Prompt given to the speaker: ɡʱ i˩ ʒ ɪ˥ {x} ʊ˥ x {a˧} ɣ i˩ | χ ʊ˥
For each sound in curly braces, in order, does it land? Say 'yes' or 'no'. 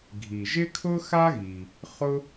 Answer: no, no

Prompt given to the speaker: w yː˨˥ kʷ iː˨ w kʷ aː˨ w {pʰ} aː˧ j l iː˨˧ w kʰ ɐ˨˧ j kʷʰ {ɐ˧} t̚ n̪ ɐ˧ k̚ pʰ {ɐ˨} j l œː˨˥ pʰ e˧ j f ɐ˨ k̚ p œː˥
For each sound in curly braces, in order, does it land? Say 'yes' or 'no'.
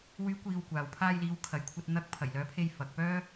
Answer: yes, yes, no

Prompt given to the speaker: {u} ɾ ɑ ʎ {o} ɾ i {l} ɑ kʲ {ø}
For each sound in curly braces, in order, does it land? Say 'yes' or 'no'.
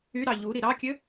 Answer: no, no, no, yes

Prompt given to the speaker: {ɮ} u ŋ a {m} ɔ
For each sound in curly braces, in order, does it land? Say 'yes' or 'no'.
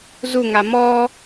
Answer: no, yes

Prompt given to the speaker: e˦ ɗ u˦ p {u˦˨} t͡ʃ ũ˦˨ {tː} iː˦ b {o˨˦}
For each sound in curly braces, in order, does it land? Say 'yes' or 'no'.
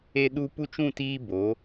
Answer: no, no, yes

